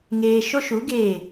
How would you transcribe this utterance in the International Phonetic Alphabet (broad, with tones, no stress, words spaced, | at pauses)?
ŋeː˧ ʃo˦ʃu˨˦ ɡeː˦˨